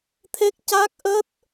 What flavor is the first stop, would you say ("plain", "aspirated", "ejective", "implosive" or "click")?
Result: aspirated